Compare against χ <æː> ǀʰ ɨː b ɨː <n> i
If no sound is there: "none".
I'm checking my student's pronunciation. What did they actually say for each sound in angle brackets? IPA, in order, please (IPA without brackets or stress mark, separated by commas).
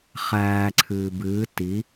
æː, t